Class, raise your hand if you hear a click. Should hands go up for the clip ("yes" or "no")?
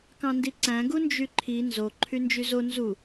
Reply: yes